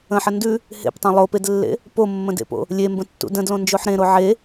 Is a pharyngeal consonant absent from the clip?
no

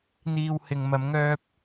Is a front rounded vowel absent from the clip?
no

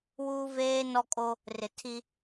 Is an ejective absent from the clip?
no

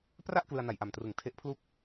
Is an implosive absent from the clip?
yes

